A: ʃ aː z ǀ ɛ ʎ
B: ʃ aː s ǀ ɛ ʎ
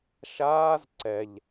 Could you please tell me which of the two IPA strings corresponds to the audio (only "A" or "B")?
A